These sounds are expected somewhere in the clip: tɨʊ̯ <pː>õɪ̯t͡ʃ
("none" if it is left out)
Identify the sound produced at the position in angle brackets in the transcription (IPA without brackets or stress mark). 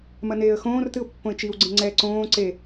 pː